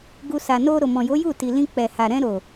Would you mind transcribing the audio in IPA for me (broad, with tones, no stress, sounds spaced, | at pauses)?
ɡ u˧ s a˨ n o˧ ɾ o˨ m ɔ̃˨ j o˨˦ j u˦˨ t i˨ l ĩ˧ k͡p ɛ˨ h a˨ ɾ ɛ̃˧ ɾ o˨